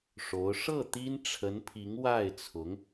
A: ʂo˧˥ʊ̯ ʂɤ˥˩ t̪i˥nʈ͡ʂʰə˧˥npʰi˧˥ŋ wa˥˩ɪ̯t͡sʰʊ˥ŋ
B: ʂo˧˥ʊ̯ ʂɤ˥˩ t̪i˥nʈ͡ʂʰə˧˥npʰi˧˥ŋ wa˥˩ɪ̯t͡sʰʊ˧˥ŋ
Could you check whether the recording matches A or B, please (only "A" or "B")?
B